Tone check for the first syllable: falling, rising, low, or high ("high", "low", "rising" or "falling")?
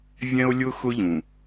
high